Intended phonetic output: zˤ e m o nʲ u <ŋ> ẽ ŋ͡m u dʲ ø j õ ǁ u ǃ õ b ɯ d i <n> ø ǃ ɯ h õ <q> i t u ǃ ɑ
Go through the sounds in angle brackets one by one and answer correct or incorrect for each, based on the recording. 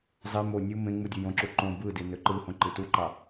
incorrect: m, correct, incorrect: ǃ

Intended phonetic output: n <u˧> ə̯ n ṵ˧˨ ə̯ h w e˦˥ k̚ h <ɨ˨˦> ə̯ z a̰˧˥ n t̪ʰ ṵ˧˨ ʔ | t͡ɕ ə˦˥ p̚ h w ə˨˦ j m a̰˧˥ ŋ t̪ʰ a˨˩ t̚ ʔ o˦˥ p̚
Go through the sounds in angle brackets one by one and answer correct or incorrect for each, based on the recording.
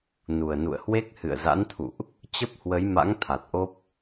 incorrect: u˨˩, incorrect: ɨ̰˧˨

